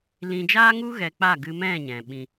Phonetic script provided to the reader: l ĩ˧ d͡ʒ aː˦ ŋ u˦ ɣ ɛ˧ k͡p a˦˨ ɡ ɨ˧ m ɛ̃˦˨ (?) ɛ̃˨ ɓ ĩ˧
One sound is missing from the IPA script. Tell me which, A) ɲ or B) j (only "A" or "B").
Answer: A